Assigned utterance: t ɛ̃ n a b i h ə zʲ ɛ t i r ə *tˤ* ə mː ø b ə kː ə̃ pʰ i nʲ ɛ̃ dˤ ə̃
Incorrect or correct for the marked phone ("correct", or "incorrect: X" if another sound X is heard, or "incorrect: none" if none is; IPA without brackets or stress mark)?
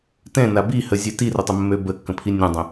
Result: correct